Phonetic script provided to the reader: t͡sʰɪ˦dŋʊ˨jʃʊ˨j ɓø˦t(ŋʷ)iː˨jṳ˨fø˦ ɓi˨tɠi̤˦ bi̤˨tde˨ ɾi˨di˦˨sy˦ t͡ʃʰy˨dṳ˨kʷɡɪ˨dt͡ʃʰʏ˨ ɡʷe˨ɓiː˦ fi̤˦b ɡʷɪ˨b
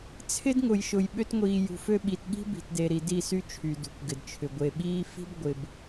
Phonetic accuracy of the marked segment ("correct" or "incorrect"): correct